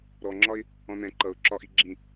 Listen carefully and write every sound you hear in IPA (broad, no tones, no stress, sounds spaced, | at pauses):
ɾ ɔ ŋ͡ǁ ɒ ɪ̯ | ɔ̃ n ɛ̃ ǃ ʌ ʊ̯ ǁ ɒ ʔ i ɡ͡ǁ ĩ